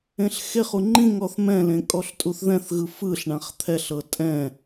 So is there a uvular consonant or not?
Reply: yes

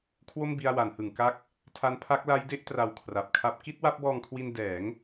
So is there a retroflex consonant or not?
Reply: no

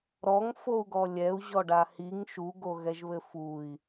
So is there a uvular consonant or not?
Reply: no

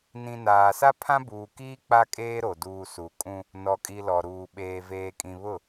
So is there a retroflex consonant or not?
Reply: no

